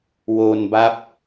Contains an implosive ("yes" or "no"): no